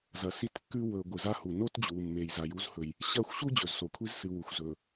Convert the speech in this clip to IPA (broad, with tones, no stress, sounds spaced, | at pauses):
z ɐ˨ s i˦ t kː ʉ˦ w ɵ˨ ɡʷ ɨ˨ z a˦ h u˨ n o˦ t d͡ʑ u˨ mː e˨ j z a˨ j u˦ z h ɵ˨ j | ɕ ɐ˦˨ xʷ ɕ u˦ d͡ʑ ɵ˨ z s o˨ kʷʰ i˦ z s ɨ˨ w u˨ xʷ z ɵ˨